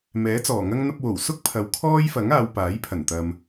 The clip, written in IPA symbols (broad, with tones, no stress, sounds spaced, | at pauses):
m ɛː˨˥ t͡s ɔː˨˩ ŋ ɐ˥ ŋ n̪ ɐ˧ p̚ w o˨˩ w s ʊ˥ k̚ pʰ ɐ˨ w kʰ ɔː˥ j f ɐ˨˥ ŋ aː˨˧ w p aː˨˥ j pʰ ɐ˨˩ n t̪ ɐ˨ m